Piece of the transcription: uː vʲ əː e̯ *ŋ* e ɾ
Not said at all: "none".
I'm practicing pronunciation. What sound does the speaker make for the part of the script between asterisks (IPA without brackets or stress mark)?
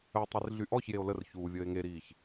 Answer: ŋ